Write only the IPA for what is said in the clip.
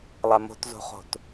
lˠamo̤tzo̤χo̤t

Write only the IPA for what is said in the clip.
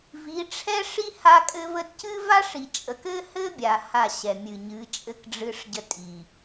vi˨˦ʈ͡ʂʰɛ˦ʂi˦ ha˦kʼɘ˦və˦d cɨ˦va˦ʂi˨t͡ʃʼə˨k ɘ˦hɘ˦bʲa˨ ha˦˨ɕɛ˨mʲɨ˨ɲɨ˨˦ t͡ʃʼɘ˦kɖ͡ʐɨ˦ʂɟə˦ tʼi˨

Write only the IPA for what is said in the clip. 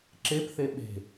ǁepθe ɓe̤

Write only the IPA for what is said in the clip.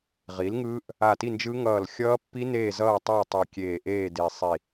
ʁi˩˥lŋɯː˦˥ʔ | a˧˩ti˥˨nd͡ʒɯ˦˥ ŋʌː˧˩lxʲʌː˦˥pːi˦˥ neː˥˨zʌː˥˨tˤʌː˥˨ tˤo˧˩kʲeː˧˩ʔeː˥˨ de˧˩sˤi˧˩

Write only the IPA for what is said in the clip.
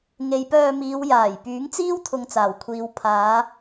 ŋe˨˧jpœː˧miː˨˧wjaː˨˩j pyː˨˥ŋt͡siː˥w t̪ʰʊ˧ŋt͡saː˨˩wkʷʰiː˨˧w pʰaː˨˧

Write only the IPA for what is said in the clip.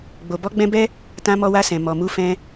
ɡ͡bo˨bɔ˧ɡ͡bɛ̃˧bɛ˦ | tã˧mɔ˧wa˧sɛ̃˨ mɔ˨mu˧ fɛ̃˧

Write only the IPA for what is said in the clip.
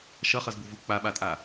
ʃʌχʌzbuvu k͡paɓatʼa

